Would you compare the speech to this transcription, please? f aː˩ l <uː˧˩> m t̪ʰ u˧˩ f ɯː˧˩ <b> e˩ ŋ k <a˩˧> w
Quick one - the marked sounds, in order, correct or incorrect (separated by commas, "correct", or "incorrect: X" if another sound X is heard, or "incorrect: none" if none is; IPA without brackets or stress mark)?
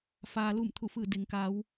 incorrect: u˧˩, incorrect: d, correct